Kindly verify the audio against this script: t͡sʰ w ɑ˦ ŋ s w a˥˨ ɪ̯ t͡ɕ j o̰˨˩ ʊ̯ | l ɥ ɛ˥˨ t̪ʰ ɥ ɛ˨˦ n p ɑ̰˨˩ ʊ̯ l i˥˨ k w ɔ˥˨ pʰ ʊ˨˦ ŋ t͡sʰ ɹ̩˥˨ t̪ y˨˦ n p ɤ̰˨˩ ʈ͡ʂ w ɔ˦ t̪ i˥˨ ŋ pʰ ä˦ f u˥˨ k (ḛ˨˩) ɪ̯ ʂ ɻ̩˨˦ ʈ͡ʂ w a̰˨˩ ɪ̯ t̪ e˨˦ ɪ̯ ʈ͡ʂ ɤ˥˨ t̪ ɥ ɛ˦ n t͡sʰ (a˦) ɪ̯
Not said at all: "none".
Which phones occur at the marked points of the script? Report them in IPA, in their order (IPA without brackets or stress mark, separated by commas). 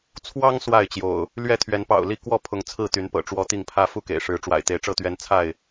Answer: ḛ˨˩, a˥˨